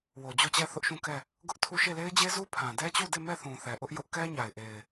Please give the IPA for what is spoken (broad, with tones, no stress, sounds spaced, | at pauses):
w o˨ d͡ʑ o˦˨ t͡ɕ ɛ˦˨ θ ʊ˦ ʔ ʃ ũ˦˨ k ɛ˦˨ | ɡ ʊ˦ ʔ tʰ u˦˨ ʃ e˦˨ l e˦ ɪ̯ d͡ʑ e˦ z u˦ pʰ ã˨ d ɛ˦ t͡ɕ u˦˨ d e˦˨ m ɛ˦˨ θ ũ˨ θ ɛ˨ ʔ ʊ˦ ʔ j ʊ˦ ʔ k ɛ˦ ɲ a˨ ɪ̯ ʔ e˨ ɪ̯